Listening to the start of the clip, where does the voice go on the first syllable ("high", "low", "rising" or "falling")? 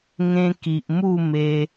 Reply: high